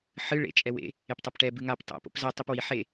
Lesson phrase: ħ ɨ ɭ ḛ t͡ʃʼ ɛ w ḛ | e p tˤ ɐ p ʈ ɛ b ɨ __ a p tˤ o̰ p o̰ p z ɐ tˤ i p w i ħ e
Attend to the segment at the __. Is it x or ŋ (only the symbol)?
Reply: ŋ